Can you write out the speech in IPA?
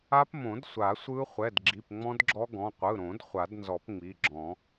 a˦˥ p m õ˨˩˦ d sʷ a˨˩˦ sʷ ɯ˦˥ χʷ ɛ˩˧˩ d ɡ͡ǁ i˩˧˩ p ŋ͡m ɔ̃˦˥ d ɡ͡ǁ ɔ˦˥ ɡ ɔ̃˩˧˩ qʷ ɯ˩˧˩ ɾ õ˨˩˦ d χʷ a˨˩˦ d n z ɔ˨˩˦ p ŋ͡m i˩˧˩ ɡ͡ǁ ɔ̃˨˩˦

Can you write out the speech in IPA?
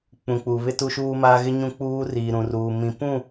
k͡p ũ˨ k͡p u˨ β ɪ˦ t u˦ ʃ uː˦ m aː˦ ɣ ɪ˦ ɲ ũ˦ k͡p uː˦ r iː˨ ɾ ũ˨ r uː˨ m ĩ˨ p ũ˦˨

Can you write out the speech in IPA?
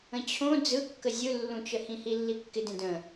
ə̃ t͡ɕʰ õ d͡z ɯ kː ə zʲ ɯ lː ũ t͡ʃ ə h ĩ h i lː i kː ɪ d ẽ d ə̃

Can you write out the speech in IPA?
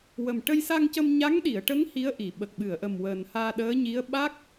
w ə˨˩ m ʈ ə˧ j s a˧ ŋ c ə˧ m ɲ a˧˥ ŋ ɗ i˨˩˨ ə̯ ʈ ə˧˥ ŋ h i˧˥ ə̯ ʔ i˨˩˨ ɓ ə˨˩ k̚ ɓ ɨ˨˩˨ ə̯ ʔ ə˨˩ m w əː˨˩ n h aː˧ ɗ əː˧˥ ɲ i˧˥ ə̯ ɓ a˦˥ k̚

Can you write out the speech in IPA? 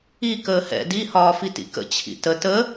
i k əː h ɛ̰ d i h ɒː f i t ḭ k ə̰ t͡ɕʰ ḭ t ə t ə

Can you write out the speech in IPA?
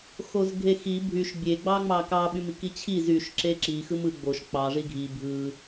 x o z ɡʱ e x i bʱ y ʃ bʲ e ɡ͡b ɑ ŋ͡m ɑ k ɑ ɓ y m i k i t͡ɕʰ i z y ʃ ǁ e ǁ i x ɯ m ɯ ɡ͡b o ʃ k͡p ɑ ʐ i ɡʱ i bʱ ɯ

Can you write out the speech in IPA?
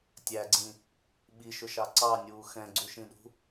tʲ æ ɡ͡ǀ ĩ | ɓ i ʃ ʊ ʃ ɑ ǀ ɑ nʲ uː x ɛ̃ ɡ͡ǀ u ʃ ĩ ɗ ṳ

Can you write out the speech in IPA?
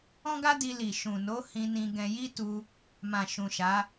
ɔ̃˦ ɡ a˦ d i˧ l i˨ ʃ ũ˨ n o˨˦ h ĩ˧ n ĩ˧ ɡ ɛ̃˧ j i˦ t u˧ | m ã˨ ʃ ũ˨ ʃ a˨˦

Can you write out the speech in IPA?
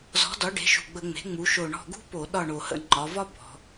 z ɔ̤˩˥ d ɒ˩˥ ɖ e̤˩˥ ʃ ṳ˨˩ ɡ͡b ə˧˩˧ ŋ͡m e̤˩˥ ŋ͡m u˩˧ ʃ o˨˩ ɳ ɔ̤˦˨ ɡ ṳ˥ p o˧˩˧ ɗ ɒ˦˨ ɳ o˨˩ h ə̰˧˩˧ ŋ͡ǃ ɒ˩˧ v ɒ˥ b ɔ̤˩˧

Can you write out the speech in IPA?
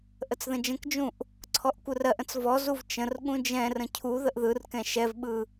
ʔ ə t͡s ð ə̃ d͡ʒ ə̃ k d͡ʒ ũ ʔ | ǀʰ ɔ ʔ kʷ ɯ r ɜ ʔ ə̃ t͡s v ɔ z u v t͡ʃ ə̃ r ɠ ũ d͡ʒ ɛ̃ r ə̃ cʰ u ð ə ʔ ð ɯ r k ɛ̃ ʃ ɛ v ɓ ɯ

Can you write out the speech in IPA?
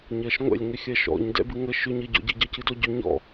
ɲ ɜ ʃ ŋʷ ɛ̰ lʲ ŋ ʏ xʲ ɜ ʃ ɔ̰ ɲ d ɛ̰ b ɨ ŋ ə ʃ ʏ ɲ ə ɟ ɔ̰ ɟ ɨ ɟ ɜ c ɨ d ɔ ɟ ʏ ɲ ɔ̰

